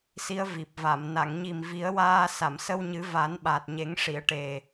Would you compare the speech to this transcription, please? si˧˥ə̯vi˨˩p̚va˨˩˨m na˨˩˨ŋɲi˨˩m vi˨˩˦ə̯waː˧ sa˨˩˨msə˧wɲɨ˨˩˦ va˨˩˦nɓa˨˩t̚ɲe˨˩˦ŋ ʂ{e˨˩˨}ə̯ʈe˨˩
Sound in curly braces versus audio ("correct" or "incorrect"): incorrect